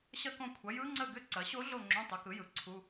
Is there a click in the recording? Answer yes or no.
yes